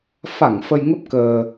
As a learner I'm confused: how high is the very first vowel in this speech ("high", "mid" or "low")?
low